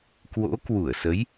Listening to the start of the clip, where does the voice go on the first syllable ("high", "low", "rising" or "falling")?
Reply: rising